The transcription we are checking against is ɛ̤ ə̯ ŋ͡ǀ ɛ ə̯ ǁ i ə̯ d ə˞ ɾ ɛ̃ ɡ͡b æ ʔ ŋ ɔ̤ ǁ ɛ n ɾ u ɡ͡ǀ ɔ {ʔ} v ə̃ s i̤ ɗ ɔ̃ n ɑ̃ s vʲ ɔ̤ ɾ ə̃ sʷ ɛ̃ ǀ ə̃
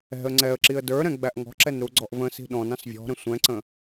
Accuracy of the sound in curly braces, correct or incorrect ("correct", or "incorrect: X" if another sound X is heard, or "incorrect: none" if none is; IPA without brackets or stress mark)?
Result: correct